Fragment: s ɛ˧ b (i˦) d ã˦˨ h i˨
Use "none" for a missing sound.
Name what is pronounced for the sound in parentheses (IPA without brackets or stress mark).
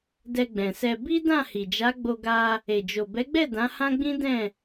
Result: i˦